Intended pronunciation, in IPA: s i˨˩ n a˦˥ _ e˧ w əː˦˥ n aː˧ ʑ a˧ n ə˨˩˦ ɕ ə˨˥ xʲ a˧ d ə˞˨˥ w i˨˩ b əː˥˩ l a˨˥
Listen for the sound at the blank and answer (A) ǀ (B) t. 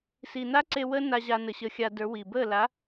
A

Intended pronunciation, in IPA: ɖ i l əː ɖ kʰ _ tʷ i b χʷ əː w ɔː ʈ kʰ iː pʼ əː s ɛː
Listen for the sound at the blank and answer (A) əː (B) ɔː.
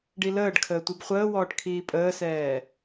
A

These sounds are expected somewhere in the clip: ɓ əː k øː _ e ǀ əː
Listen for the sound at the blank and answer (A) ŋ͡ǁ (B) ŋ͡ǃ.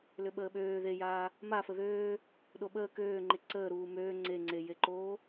B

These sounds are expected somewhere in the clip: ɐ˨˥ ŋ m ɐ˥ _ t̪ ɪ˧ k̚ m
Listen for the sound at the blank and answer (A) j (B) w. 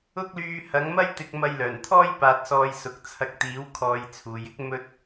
A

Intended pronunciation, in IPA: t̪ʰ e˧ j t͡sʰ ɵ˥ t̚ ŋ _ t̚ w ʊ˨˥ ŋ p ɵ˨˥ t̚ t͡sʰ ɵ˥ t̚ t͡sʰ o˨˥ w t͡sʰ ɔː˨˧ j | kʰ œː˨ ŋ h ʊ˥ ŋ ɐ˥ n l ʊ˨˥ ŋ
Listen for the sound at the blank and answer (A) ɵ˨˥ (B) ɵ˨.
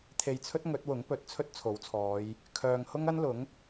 A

